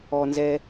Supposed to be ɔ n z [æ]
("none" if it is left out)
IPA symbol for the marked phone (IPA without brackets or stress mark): ɛ